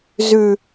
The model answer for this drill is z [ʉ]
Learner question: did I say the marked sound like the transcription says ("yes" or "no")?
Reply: yes